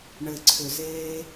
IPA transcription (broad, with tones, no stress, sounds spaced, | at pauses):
ɳ ɘ˨ ǀʰ ʏ˨ z eː˦